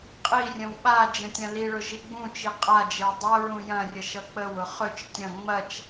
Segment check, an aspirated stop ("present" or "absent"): absent